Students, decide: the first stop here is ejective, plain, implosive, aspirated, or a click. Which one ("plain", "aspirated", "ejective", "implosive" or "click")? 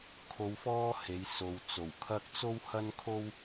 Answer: aspirated